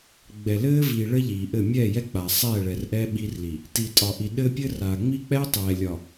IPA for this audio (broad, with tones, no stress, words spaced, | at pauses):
ɡ͡bɛ˨ lɘː˦vi˨ ɭɘ˦ ʎiː˨ʔɘ˦˨ mʲɛː˦˨jɛ˦k͡paː˨ sˤɛː˦˨ɭɛ˨rʔɛ˦ ɓi˦rli˨ | ti˨tʼɒ˨ʔi˨ ɗɘː˦pʲɘ˦raː˨ ŋ͡mi˦k͡pɛː˦ tˤɛː˨lʲɒ˨